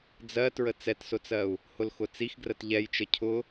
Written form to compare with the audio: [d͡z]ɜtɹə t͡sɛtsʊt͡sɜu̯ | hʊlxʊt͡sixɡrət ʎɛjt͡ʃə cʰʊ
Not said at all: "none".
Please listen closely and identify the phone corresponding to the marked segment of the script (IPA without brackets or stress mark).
d͡z